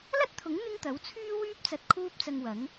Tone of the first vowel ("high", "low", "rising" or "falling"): high